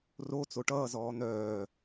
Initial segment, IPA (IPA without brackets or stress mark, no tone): r